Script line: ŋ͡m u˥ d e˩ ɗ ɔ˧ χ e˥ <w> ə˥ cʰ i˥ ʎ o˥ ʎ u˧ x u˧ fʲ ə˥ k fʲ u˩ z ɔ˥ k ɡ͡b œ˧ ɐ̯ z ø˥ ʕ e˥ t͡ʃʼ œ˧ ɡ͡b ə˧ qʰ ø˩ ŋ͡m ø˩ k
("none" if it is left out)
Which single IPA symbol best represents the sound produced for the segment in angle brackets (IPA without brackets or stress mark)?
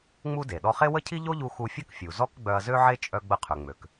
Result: w